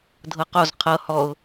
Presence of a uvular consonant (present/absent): present